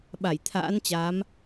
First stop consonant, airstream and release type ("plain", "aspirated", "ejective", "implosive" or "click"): implosive